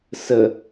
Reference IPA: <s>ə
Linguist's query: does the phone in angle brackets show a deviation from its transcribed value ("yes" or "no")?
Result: no